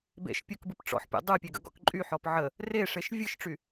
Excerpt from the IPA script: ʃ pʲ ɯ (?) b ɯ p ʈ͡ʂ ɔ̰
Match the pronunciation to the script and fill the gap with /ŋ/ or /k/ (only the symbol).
k